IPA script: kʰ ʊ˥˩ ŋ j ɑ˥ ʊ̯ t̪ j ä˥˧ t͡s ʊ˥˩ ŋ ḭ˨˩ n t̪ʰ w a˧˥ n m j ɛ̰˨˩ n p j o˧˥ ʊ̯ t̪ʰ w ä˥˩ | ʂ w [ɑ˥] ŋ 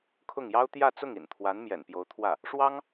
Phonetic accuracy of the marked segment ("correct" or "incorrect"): correct